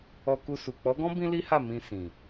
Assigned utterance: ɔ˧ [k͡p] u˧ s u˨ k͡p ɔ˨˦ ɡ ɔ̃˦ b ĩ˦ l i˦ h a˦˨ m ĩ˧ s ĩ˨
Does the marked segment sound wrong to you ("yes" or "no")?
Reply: yes